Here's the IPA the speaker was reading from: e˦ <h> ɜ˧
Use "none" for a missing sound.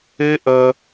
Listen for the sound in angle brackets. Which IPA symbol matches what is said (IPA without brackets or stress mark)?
ʔ